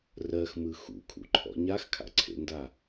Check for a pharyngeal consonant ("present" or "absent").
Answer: absent